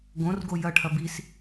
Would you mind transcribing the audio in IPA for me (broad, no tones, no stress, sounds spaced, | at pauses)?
ɡ õ r ɡ o j ɐ ʈʰ ɐ b i s